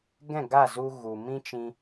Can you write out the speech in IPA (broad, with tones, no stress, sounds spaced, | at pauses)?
ɡ ɛ̃˦˨ ɡ a˦˨ z u˧ ɣ u˨ m ĩ˦ t͡ʃ ĩ˧